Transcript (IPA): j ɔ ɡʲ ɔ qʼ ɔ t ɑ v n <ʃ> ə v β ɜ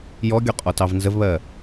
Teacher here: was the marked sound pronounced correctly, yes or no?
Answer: no